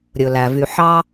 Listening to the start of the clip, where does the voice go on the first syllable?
low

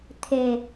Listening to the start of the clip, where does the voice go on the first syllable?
low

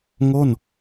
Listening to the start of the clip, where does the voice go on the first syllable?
falling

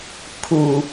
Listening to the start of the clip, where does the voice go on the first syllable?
low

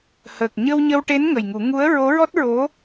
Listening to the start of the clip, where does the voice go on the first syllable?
low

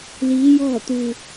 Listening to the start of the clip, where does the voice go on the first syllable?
rising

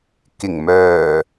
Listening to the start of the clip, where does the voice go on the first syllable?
low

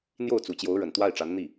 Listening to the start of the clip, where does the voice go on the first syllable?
falling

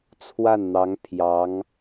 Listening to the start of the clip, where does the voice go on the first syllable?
falling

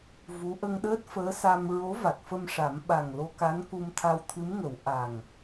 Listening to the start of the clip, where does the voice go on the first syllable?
rising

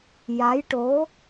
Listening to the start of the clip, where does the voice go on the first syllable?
rising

